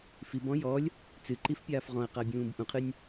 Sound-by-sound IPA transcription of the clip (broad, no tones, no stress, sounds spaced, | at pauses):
f i b ɔ̃ j ɔ lʲ | t͡s ɨ ǃ i f pʲ aː f ʁ ɔ̃ ɐ̯ q a bʲ ũː b ʔ ũ qʰ ɨ nʲ